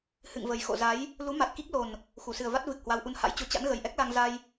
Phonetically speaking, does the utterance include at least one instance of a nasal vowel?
no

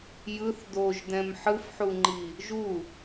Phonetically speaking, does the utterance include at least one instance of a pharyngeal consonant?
yes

